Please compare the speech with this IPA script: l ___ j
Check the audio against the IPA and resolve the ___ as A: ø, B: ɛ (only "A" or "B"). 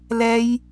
B